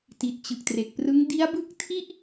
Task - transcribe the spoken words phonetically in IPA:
t i˨˩ t̚ t͡ɕ ɯ˨˩ k̚ t r e˨˩ k̚ p r ɯ˦˥ ŋ d i˦˥ a̯ b ɯ˦˥ k̚ tʰ i˥˩ ʔ

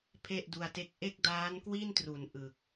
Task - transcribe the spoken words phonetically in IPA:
pʰ e˥˩ ʔ d u˧ a̯ t e˥˩ k̚ ʔ e˥˩ k̚ d aː˦˥ n k w i˥˩ n t r u˩˦ n ʔ ɯ˨˩ k̚

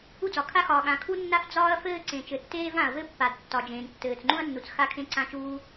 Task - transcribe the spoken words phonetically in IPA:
u˥ d͡z ɒ˩ kʰ a˥ x ɒː˩ ɠ ã˩ kʰ u˥ nː a˥ f d͡z ɒː˥ ɐ̯ f ɘː˥ ǀ ẽ˩ t͡ʃ ɘ˩ tː eː˥ v ã˩ ɐ̯ v ɘ˥ pː a˩ d tː ɒ˩ d͡ʒ ẽː˩ n tː ɘː˩ t͡s ŋ͡ǃ ũ˥ ɐ̯ nː u˩ t͡s x a˥ kʰ ẽ˥ ǀ ã˥ t͡ʃ uː˥

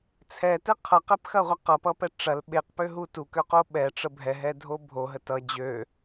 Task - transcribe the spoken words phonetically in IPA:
t͡sʰ ɛ t ɛ qʰ ʌ q ɛ p x ɐ ʁʷ ɐ q ʌ p ʌ p ɛ ʈ͡ʂ ɐ l ɓ e q p ø ɦ u t u k ø q o ɓ ɛ ʈ͡ʂ ə bʱ ɛ ɦ ɛ dʱ o bʱ o ɦ ə t ʌ d͡ʑ ø

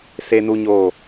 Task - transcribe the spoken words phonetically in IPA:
s e˦ n u˦ ɲ oː˦˨

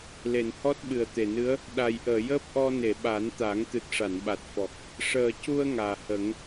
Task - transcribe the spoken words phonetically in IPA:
l e˨˩˨ n h ɔ˦˥ t̚ ɓ ɨ˨˩ ə̯ t̪ e˨˩ n ɨ˧˥ ə̯ | ɗ a˨˩ j ʔ əː˨˩˨ j əː˦˥ p̚ ʔ ɔ˧ n e˨˩˨ ɓ a˨˩˦ n t̪ a˨˩˦ ŋ t̪ ɨ˨˩ t̚ ʂ a˨˩˨ n ɓ a˨˩ t̚ f ɔ˨˩ k̚ | ʂ əː˨˩ c u˧ ə̯ ŋ aː˨˩ h ə˨˩˦ ŋ

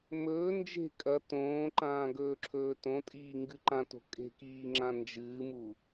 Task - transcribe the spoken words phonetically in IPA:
m ɵː n d͡ʒ e̤ kʼ ɐ t õː ǃ ãː ɡ ɵː ǁʰ ɵː t õ tʼ iː ŋ ɡ ɨ ǃ ã t o̤ kʼ e̤ k iː ŋ͡ǁ ã n d͡ʒ ɨː m u

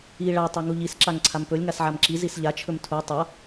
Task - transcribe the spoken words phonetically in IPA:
i ɭ a tˤ a ŋ u ʎ i s ǁ a ŋ ǀʰ a m p ɵ lʲ ŋ a s ʕ a m ǁ i z i s ʎ a t͡ʃʰ ɵ m tʰ u tˤ a

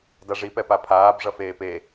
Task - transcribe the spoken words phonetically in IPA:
d a ʐ i p ɛ p a pʰ aː b ʐ ʌ f eː p e

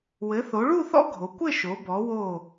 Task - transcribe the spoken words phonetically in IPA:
w ɘ˩˧ θ o˩˧ ɭ u˥˧ θ ɔ̰˥ ɡʱ o˩˧ kʷ ɘ˥˧ ʃ o˩˧ b ɔ˩˧ w o˧˩

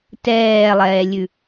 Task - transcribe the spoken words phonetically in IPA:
t ɛː lˠ ɛː lʲ ʉ

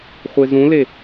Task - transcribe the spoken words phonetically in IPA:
χʷ e z ũ l e

